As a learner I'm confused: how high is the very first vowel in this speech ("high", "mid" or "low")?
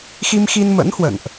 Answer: high